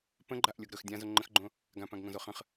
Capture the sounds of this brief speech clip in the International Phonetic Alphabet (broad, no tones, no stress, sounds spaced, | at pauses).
p ə̃ ɡ͡ǃ a ʔ lʲ o ɡ ɾ ɵ x dʲ ã z o ŋ͡ǃ ə̃ x ɡ͡ǃ õ | ɡ ã p ã ɡ ŋ õ z o χ ə̃ χ